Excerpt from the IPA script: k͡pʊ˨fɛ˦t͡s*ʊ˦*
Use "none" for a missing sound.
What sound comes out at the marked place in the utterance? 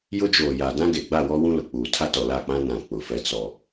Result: ɔ˦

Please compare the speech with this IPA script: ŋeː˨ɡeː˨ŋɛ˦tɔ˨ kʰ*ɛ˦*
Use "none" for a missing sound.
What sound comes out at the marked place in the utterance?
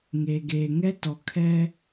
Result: ɛ˦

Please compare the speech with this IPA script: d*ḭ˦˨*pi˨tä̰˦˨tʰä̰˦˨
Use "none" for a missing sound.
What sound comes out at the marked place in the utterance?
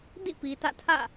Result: ḭ˦˨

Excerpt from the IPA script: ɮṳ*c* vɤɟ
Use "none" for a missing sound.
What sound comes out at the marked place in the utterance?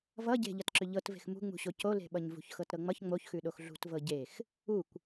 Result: t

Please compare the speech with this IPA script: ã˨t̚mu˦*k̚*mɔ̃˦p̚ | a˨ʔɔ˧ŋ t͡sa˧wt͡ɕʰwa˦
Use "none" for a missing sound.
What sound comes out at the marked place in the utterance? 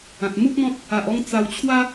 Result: k̚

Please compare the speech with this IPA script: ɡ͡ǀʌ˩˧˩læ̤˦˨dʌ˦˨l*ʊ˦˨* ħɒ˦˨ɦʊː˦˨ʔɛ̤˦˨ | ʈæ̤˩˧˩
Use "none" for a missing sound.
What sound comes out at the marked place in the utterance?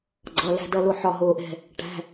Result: ʊ˦˨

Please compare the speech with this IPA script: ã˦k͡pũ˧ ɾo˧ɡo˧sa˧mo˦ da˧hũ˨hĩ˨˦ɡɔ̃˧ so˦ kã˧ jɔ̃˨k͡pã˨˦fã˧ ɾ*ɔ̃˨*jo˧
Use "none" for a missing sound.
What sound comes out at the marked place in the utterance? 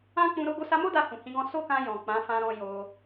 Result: ɔ̃˧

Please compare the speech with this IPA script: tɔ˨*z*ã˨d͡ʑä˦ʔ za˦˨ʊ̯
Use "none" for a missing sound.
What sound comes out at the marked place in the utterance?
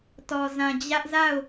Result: z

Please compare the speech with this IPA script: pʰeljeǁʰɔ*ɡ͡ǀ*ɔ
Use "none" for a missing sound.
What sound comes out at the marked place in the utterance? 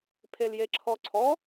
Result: ǀʰ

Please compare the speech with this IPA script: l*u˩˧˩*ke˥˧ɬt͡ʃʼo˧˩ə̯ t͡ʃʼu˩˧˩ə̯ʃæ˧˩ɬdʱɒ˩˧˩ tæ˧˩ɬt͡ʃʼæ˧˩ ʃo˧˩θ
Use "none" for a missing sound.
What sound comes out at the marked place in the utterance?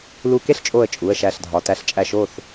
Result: u˧˩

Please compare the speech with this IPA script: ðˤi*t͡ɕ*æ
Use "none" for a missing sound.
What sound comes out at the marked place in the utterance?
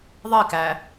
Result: k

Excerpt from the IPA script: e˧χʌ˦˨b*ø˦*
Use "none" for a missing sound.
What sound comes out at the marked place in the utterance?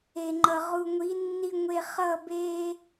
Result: e˦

